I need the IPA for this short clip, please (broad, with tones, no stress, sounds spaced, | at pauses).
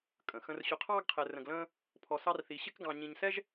kʼ ə̃˩ x ə̃˧ r ɕ ʊ˧ qʰ ɑː˥ ɡ qʰ ɛ˧ r ə̃˧ ɡ l ə̃ː˥ | pʰ ɔ˧ s ɑ˥ r θ i˧ ɕ ɪ˥ k ɡ ɑ̃˧ ɲ ĩ˧ ɲ s ɛ˥ ʒ